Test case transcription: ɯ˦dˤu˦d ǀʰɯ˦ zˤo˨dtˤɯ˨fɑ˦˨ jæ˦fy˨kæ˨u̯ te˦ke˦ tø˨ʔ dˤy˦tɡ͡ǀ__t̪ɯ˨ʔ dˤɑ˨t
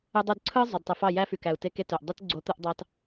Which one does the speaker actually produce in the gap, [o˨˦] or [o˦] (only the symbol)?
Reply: o˨˦